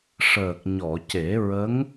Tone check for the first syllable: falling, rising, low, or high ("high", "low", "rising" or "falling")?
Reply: low